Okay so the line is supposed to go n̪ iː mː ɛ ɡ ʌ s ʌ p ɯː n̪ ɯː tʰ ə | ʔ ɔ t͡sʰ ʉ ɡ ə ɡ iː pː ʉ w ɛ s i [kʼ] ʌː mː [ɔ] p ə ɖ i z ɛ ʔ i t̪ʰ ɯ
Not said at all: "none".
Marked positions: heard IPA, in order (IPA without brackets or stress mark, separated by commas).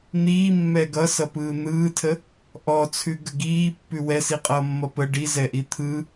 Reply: qʼ, ʌ